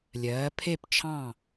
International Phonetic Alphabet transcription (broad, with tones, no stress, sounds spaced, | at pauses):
lʲ ɜː˨˦ pʰ e˥˧ p t͡ʃʰ ɑ̃˥˧